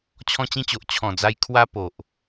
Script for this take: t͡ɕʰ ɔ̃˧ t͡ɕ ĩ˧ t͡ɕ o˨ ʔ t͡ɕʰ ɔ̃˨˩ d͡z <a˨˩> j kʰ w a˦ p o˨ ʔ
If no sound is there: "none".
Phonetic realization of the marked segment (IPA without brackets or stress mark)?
a˧